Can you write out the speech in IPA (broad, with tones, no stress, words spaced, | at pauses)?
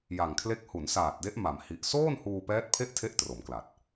ja˨˩ŋkʰle˦˥k̚ hu˩˦nsaː˨˩t̚de˦˥ʔ ma˩˦m hi˨˩ʔ soː˥˩nhuː˧ pɛː˦˥t̚pʰe˥˩ʔtʰe˦˥ʔ tro˩˦mkla˨˩t̚